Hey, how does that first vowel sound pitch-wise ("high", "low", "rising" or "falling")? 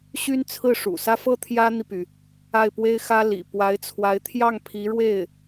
high